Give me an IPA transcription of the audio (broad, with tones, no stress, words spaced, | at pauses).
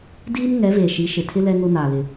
diː˦m ŋɛ˨˦veː˨ʃi˨˦ ʃɪ˨tʰɪ˦ lɛ˦ŋʊ˦naː˨lɪ˨